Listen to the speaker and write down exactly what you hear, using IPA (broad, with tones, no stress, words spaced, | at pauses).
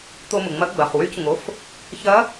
t̪o˧mʊ˩ŋ͡mɐ˧˥ɡ͡bɐ˩˧˩χ wy˧˥cŋo˩˧˩f | çɐ˧˥